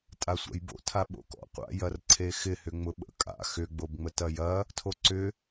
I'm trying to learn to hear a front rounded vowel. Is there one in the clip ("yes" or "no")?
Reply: yes